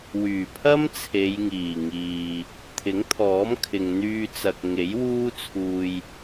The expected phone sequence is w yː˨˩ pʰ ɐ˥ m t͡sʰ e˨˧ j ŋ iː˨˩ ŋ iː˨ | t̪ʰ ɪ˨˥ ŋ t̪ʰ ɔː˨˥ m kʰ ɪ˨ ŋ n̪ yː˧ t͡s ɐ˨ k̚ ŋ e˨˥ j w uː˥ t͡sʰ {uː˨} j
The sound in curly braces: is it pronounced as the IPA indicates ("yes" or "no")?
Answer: no